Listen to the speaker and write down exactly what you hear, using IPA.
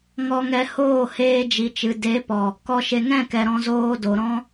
ŋ ɔ˧ ŋ ɛ˧ h oː˦˨ h eː˧ d͡ʒ i˨ t͡ʃ ɨ˨ d e˨˦ p ɔ˨ | k ɔ˦ ʃ e˧ ŋ ɛ̃˦˨ k ɛ˨ ɾ ɔ̃˧ z oː˧ d o˨ ɾ ɔ̃˦

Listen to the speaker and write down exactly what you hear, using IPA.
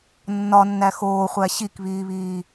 nː ɒ nː æ x oː χʷ æ ɕ i k β iː β iː

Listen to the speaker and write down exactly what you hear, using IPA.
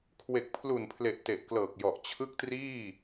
kʰ w e˨˩ k̚ pʰ l u˨˩ n pʰ l e˨˩ ʔ t e˨˩ ʔ k l ɤː˨˩ k̚ j ɔ˨˩ ʔ t͡ɕʰ ɯ˦˥ k̚ t r iː˥˩

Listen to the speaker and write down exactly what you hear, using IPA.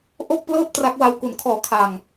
ʔ o˥˩ k̚ p l ɤː˥˩ p̚ t r a˦˥ k̚ w a˧ w k u˩˦ n kʰ ɔː˨˩ kʰ a˨˩ ŋ

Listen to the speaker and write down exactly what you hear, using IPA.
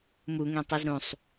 m u ŋ ẽ tˤ i z ɾ ũ sˤ

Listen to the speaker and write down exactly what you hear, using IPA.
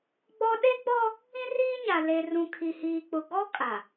ɡ͡b ɔ˦ ɗ e˦ ɡ͡b ɔ˦ | ĩ˦ r iː˦ ɲ a˨ l e˨ r ũ˨ kʰ i˨ h iː˨ k͡p ʊ˨ ɡ ɔ˦ kʼ a˨

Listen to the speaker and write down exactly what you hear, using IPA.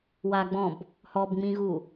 w a ɡ͡b ɔ̃ b | h ɔ b ŋ͡m ĩ ɣ u

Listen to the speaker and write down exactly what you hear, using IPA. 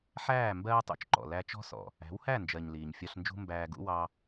ħ æː˦˨ m b ɜː˦ tˤ ṵ˧ t͡ʃ ǃ ɔ̰˨ l æ˧ t͡ʃ ɔ̤˦ s ɔ̰˨ | æ̤˨˦ w h æ˦˨ n d͡ʒ ɜ˨ ɲ l iː˨ ɲ fʲ ɒ˧ ɬ n d͡ʒ ṳ˦ m b æː˧ ɡ ṵ˦ w ɑ˦

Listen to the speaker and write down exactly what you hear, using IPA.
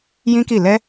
j ĩ˦ k i˦˨ l ɛ˧

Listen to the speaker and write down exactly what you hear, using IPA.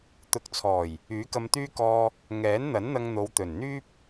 t̪ ʊ˨ k̚ t͡sʰ ɔː˨˩ j | yː˨˥ k ɐ˧ m t̪ yː˥ k ɔː˧ | ŋ ɛː˨˥ n n̪ ɐ˨˥ n n̪ ɐ˧ ŋ n̪ o˨˧ w t̪ ɵ˨˩ n n̪ yː˥ p̚

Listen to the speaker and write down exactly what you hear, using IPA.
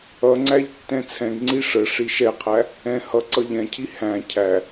ʌ ŋ͡ǀ æ ʎ tː ɛ̃ t͡sʰ ɛ̃ ɡ ŋ͡ǀ i ʂ ə ʂ i ʃ ɛ qʰ æ | ɛ̃ h ʌ ǀ ʌ ʎ ɛ̃ cʰ i h æ̃ cʰ æ

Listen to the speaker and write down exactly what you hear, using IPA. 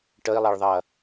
ʈ ə i̯ lˠ ɛ ɭ ðˤ ɐ

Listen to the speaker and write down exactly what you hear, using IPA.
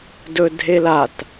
d ɵ dʱ e l a t

